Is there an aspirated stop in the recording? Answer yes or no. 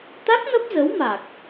no